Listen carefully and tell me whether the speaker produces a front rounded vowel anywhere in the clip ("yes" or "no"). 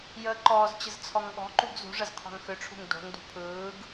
yes